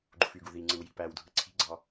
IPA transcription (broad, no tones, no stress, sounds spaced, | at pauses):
ɡ͡ǃ u f y ɡ u ð i ŋ͡ǀ ɯ w j i̤ p æ w dʱ ɯ ǀʰ i̤ ɡ͡ǀ ɑ